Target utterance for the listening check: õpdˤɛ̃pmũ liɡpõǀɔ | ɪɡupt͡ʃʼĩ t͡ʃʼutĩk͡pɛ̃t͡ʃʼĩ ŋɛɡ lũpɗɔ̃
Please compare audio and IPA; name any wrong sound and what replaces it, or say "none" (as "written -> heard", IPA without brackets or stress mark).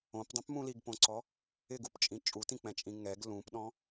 none